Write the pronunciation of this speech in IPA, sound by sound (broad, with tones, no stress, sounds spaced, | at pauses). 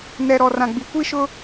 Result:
n ɛ˨ ɾ ɔ˨ r ã˨ ɡ͡b i˨ kʷ i˦ ʃ ʊ˦